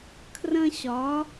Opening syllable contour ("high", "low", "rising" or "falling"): high